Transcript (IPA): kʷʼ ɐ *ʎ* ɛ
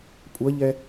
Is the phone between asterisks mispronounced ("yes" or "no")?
no